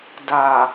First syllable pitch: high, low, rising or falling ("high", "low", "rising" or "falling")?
low